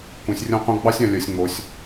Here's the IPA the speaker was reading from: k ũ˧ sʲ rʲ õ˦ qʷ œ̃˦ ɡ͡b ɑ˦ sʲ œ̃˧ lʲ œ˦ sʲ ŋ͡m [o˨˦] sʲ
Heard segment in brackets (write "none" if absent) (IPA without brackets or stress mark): o˦